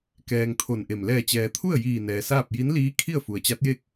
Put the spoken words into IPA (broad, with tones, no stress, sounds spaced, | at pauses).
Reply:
k ɛː˧ ŋ t̪ʰ o˧˩ n ʔ e˧˩ m l ɛː˧˩ t͡ɕ ɛː˩ t̪ʰ u˥˨ ə̯ j iː˧˩ n ɛː˩ s aː˥˨ p̚ j i˧˥ n l iː˧˥ kʰ i˥˨ ə̯ f u˩ ə̯ t͡ɕ a˧˥ t̚ j e˥˨ k̚